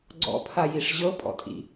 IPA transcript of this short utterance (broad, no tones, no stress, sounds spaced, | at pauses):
ɡ͡ǀ ɔ̰ pʰ a j i ʂ ʑ ɤ pʼ ɔ̰ tʼ ḭ